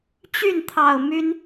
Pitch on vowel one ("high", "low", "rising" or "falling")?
falling